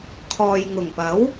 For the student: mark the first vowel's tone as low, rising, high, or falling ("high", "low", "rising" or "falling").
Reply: low